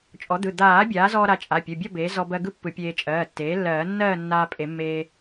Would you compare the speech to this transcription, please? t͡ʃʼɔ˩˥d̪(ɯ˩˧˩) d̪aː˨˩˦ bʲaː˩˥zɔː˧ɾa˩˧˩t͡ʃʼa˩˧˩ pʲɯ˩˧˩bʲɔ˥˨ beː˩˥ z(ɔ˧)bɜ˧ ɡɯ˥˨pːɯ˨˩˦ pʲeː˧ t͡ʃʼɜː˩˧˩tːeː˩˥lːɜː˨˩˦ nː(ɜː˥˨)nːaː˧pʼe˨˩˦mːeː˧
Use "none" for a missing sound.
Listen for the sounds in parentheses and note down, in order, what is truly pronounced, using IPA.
ɯ˩˧˩, ɔ˧, ɜː˥˨

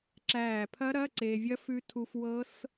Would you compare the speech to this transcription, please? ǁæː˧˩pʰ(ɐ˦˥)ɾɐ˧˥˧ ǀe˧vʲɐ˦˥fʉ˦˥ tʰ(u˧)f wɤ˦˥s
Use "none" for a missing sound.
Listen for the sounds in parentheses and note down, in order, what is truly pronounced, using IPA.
ɐ˦˥, u˧

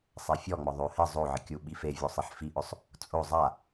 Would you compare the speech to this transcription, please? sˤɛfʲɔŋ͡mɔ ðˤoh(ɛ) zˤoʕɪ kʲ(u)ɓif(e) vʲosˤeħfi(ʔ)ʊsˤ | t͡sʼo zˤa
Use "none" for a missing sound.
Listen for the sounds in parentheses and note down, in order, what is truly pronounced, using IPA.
ɪ, u, e, ʔ

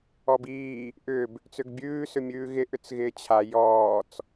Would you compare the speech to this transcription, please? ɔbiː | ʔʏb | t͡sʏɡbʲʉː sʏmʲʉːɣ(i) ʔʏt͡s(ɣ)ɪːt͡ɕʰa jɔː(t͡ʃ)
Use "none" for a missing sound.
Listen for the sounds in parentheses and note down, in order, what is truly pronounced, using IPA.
ɪ, ɣ, t͡s

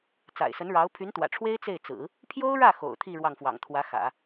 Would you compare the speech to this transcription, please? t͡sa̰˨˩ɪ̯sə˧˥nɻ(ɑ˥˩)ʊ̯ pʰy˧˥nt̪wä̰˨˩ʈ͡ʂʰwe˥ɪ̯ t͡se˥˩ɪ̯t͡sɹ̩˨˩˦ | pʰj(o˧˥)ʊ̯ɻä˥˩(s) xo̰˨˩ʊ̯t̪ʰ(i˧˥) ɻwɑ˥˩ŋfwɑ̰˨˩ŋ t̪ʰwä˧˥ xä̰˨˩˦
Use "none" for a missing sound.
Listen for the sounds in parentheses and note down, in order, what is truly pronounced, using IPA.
ɑ˧˥, o˥, none, i˥˧

